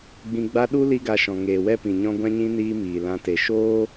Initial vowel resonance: nasal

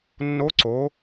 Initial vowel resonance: oral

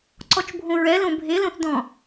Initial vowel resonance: oral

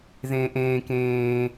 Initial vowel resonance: nasal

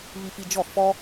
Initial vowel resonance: oral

